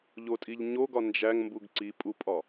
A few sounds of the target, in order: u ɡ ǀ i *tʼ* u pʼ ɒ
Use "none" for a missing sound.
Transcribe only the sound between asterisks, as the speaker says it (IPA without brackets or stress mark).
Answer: pʼ